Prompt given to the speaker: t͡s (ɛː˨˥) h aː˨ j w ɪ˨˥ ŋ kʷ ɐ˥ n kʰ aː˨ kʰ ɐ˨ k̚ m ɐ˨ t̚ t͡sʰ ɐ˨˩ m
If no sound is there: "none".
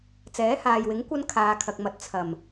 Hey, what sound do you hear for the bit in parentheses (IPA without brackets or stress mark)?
ɛː˨˥